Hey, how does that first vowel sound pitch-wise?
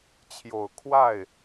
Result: low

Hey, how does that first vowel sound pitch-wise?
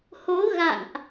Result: rising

